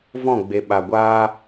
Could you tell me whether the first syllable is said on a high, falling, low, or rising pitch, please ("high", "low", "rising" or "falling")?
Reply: falling